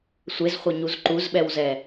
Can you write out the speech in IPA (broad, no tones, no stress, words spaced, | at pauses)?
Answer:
sʷezχʷɐɲuz ǃuzɓɛwzɛ